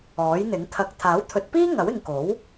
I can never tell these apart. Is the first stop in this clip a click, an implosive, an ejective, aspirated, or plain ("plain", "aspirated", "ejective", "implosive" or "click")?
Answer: aspirated